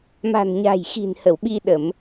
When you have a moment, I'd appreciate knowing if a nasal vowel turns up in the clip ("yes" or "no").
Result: no